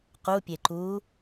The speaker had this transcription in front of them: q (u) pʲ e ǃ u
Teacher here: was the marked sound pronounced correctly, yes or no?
yes